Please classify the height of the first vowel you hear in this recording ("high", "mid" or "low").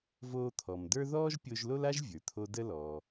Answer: mid